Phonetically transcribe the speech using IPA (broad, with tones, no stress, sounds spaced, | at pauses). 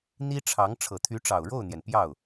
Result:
n̪ i˥ ʈ͡ʂʰ ɑ˧˥ ŋ ʈ͡ʂʰ ɤ˨˩ t̪ʰ y˧˥ ʈ͡ʂ ɑ˨˩ ʊ̯ ɻ o˥˩ ʊ̯ n̪ j ɛ˩ n p j ɑ˥˩ ʊ̯